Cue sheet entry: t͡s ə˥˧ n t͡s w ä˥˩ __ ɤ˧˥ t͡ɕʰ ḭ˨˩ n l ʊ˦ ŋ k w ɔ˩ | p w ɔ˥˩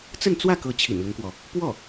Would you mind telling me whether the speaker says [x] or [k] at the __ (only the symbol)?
k